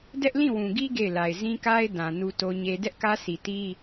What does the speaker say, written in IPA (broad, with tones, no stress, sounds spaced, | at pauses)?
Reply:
d ɛ˦ ʔ l ĩ˦˨ w ũ˨ ɡ i˦ ɡ e˦˨ ɪ̯ l a˨ ɪ̯ z ĩ˦ k a˦ ɪ̯ d ã˨ n u˦ t o˦ ɲ e˦ d ɛ˦ ʔ k ä˦ sʰ i˨ t i˦